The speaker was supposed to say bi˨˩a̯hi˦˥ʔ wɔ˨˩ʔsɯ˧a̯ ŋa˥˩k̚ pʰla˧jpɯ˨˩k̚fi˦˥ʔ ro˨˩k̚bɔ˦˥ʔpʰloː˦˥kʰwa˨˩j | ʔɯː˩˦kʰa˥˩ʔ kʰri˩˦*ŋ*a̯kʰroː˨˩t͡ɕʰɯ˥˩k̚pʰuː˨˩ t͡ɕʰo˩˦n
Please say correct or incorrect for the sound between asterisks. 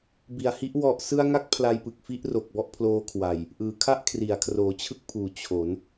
incorrect